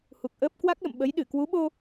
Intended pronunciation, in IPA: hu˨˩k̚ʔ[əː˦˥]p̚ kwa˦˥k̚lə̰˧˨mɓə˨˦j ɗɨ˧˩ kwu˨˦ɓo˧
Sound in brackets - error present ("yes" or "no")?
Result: no